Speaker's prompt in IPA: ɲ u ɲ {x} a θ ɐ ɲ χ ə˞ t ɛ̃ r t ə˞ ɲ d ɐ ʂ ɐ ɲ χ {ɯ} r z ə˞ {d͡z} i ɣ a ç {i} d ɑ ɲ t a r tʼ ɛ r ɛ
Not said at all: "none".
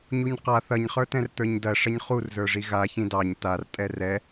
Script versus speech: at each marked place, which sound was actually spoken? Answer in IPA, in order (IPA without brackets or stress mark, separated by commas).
q, u, ʐ, ĩ